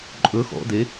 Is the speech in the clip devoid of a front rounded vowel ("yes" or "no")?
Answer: yes